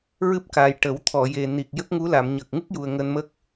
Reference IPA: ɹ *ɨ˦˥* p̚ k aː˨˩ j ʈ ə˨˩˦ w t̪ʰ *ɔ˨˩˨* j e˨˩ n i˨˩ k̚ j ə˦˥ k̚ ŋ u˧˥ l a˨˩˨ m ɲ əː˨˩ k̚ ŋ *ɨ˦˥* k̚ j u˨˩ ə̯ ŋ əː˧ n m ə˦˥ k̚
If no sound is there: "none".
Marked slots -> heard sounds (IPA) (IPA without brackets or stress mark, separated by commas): ɨ˦˥, ɔ˨˩˨, ɨ˦˥